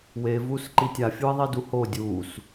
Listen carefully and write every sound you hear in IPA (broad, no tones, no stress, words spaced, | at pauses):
we vuːsǃitʲa fʲuɪ̯ðˤiduho dʲuːs